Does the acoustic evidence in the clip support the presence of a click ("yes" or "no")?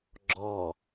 yes